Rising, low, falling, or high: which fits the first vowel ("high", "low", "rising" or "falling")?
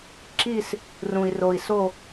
falling